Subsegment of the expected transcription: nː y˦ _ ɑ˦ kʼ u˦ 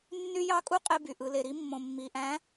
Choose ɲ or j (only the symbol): j